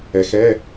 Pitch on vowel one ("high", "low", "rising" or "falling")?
low